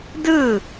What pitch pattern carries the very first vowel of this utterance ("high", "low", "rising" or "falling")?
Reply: falling